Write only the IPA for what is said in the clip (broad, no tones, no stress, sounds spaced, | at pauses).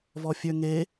v ɔ fʲ ø ŋ e